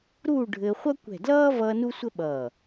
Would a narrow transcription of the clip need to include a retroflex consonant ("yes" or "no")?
yes